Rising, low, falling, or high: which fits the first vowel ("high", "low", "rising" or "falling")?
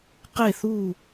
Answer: falling